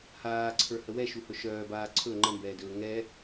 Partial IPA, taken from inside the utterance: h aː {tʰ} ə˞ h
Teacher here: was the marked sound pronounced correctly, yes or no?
no